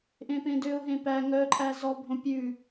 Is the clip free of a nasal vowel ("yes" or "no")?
no